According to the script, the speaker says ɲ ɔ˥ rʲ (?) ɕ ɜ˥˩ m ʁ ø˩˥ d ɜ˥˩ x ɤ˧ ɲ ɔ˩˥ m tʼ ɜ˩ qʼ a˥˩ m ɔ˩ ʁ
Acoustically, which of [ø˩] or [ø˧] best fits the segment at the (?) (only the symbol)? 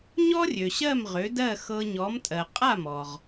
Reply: ø˩